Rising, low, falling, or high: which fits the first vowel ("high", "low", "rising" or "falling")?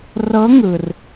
rising